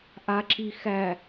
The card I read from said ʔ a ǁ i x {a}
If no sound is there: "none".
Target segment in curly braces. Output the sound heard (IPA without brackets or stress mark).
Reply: æ